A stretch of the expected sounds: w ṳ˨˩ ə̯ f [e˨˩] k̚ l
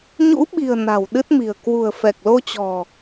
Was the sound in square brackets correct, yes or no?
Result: no